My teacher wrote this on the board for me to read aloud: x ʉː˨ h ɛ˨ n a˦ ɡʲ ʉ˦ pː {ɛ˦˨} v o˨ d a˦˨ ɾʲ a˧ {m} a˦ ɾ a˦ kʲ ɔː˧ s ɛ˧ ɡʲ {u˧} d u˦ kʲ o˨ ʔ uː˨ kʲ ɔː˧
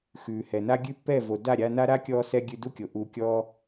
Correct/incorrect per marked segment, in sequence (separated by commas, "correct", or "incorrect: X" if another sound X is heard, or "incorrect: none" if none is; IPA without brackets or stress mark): correct, incorrect: n, incorrect: ʉ˧